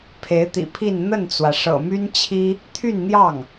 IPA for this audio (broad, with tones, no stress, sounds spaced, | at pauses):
pʰ e˧˥ ɪ̯ t̪ ḭ˨˩ pʰ i˥˧ n n̪ ə˥˩ n t͡s w ä˩ ʂ ɤ̰˨˩ m y˥ n t͡ɕʰ i˥ | t̪ʰ y˥˧ n n̪ j ɑ˥˩ ŋ